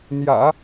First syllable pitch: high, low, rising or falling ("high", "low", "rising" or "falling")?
low